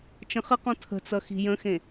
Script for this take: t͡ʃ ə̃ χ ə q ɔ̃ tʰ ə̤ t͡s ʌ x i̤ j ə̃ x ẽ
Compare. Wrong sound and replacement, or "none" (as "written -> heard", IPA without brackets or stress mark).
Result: none